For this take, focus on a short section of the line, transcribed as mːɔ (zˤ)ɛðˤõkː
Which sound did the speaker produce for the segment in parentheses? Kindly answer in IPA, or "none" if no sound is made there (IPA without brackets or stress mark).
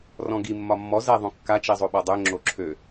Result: z